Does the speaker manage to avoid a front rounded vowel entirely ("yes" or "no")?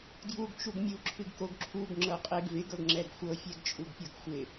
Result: yes